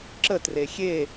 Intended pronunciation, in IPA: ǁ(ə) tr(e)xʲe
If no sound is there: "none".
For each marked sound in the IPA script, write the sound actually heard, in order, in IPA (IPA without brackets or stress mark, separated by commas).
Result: ə, e